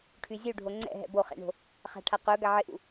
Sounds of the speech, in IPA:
ʈʰyzʲuɖʱo ŋ͡ǀɛ̰ ɦɛ̰boχɛ̰ɳo̤ | χa̤ʈʰaqœ ɡaʕɪʔṵ

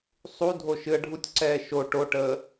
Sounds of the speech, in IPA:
sˤu dʱoʃɨə̯ ɖʱutʲǀɛː ʃo ʈoʈəː

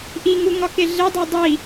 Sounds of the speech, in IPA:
ʔiŋuŋɒke ɮedˤæ dˤi

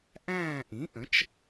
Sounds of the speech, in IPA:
ʔæ̃ː˦˨ʔĩ˩˥ʔə̃˩˥t͡ʃ

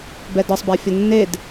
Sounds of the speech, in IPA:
bɛdɤsˤbæfʲə nːed

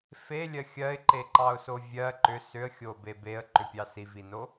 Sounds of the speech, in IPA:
felʲɜ xʲɜɪ̯ǃeǃɑʊ̯so vʲɜ ǃʏ sʏə̯xʲobe beə̯ǃʏpʲɑ sivino

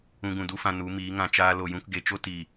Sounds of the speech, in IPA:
ũ˧ɡũ˨du˦fã˧ nu˨˦miː˨˦ŋã˧t͡ʃaː˦ lo˨jũ˧kɡe˨t͡ʃo˦ ti˨

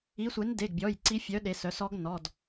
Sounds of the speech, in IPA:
i˨˥sʷe˨˥n de˩˧˩ɡbʲɔ˩˧˩j ǀi˦˥ fʲœ˨˥ɗe˩˧sœ˩˧sɔ˦˥ɡ nɔ˩˧˩d

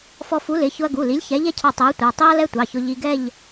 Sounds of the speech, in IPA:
fɔ˧fu˨˥lɪ˩˧˩ çʊ˧ɐ̯ɡu˩˧˩li˨˥lʲ çɛ˨˥ʎɛ˥cʰɑ˧ tˤi˨˥ɐ̯tʷɛ˩˧˩ tˤi˥ɐ̯lɛ˥tʷɑ˩˧˩çʊ˧ ʎi˧ɡɛ˥˧ʎ

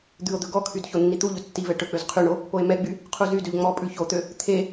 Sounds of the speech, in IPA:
d̪ʉo̯d̪ɵ ɡɔkʰyd çonːit̪uʎɵ tːivɛ ʈɵk͡pøz qʰyɳo | poe̯mɛɡ͡by | qʰuzydøʎ ŋ͡mɔpʼʉ çot̪ø | t̪ʰe

